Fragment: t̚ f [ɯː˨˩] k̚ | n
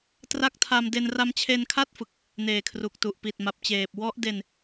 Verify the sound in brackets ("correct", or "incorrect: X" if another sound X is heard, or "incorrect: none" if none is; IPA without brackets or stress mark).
incorrect: ɯ˨˩